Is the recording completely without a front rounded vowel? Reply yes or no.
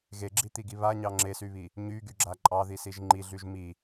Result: no